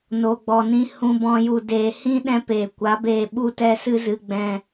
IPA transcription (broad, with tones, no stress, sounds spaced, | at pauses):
n o˨ ɡ͡b ɔ˨ n ĩ˧ h ũ˧ b ɔ̃˧ j u˨ d eː˨ h ĩ˦ ɗ ɛ̃˦ p eː˨ kʷ a˨˦ b eː˧ ɓ u˧ t ɛ˧ s ɨ˧ z ɨ˨ ɡ͡b ɛ̃˧